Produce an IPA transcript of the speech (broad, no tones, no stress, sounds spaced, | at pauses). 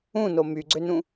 ũ n o m y ɡ͡ǀ ø n ũ